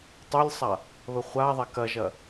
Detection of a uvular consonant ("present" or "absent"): present